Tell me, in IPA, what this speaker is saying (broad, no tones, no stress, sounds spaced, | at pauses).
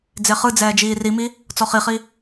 d͡z e χ ɯ d͡z ɛː d͡ʒ iː r i m i | t͡s ɔ χ i χ i